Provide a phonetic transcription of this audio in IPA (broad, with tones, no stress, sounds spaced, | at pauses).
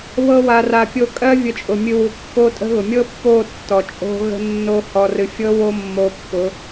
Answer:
β ɤ˧ w a˨ r a˨ pʲ o˧ kʼ ɜ˦ vʲ ə˧ t͡ʃʼ ʊ˨ mʲ ɨ˧ w u˨ kː o˦ tʼ ə̤˦ ɣ ʊ˨ mʲ ɤ˦ pː o˦˨ tː ɔ˨ t͡ʃʼ o̤˦ ɣ ə̤˦ nː o˦ h ɔ˧ r ɨ˧ fʲ ɤ˦ w o˦ mː o˧ pː ʊ˨˦